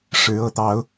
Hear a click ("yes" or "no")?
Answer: no